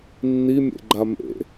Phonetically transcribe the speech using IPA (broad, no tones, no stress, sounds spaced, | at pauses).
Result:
nː i mʲ ḛ ɡ͡ǃ a m ḛ